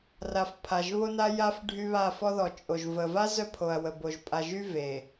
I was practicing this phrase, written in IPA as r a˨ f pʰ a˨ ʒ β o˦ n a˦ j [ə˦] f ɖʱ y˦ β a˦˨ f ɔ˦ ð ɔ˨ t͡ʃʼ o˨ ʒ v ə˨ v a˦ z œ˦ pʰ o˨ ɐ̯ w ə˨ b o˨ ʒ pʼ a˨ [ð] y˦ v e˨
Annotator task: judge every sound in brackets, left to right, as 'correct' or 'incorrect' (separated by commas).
incorrect, incorrect